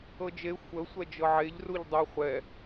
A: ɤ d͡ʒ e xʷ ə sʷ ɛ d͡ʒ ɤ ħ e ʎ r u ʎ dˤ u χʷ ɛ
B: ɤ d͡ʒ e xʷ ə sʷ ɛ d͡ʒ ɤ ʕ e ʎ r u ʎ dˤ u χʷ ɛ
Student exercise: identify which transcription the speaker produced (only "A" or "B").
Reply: B